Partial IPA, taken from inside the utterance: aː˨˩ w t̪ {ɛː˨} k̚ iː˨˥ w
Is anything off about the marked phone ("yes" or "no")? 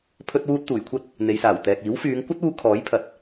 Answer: no